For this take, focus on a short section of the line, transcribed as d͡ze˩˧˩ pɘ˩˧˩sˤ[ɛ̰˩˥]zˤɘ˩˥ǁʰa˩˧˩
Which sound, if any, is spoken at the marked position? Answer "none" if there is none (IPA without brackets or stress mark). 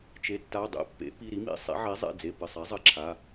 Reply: ɛ˩˥